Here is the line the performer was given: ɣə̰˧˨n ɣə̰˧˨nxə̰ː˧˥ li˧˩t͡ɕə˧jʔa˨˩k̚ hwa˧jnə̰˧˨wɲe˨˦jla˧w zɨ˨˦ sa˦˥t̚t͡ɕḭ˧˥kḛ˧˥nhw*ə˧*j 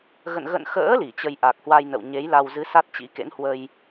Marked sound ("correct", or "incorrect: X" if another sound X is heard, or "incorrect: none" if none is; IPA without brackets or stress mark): correct